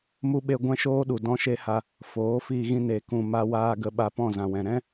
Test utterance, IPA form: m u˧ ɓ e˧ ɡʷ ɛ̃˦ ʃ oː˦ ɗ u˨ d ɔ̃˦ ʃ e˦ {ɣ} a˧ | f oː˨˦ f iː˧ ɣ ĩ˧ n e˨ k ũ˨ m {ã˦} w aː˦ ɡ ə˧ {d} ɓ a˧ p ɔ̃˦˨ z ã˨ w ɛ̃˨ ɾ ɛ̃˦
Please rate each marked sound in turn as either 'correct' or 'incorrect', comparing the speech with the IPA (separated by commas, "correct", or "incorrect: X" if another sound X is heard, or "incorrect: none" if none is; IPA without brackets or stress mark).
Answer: incorrect: h, incorrect: a˦, incorrect: none